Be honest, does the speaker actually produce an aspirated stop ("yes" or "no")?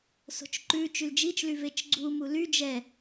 no